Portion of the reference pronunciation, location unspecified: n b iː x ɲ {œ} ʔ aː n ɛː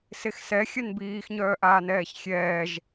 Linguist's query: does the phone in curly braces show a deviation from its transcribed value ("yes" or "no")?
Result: yes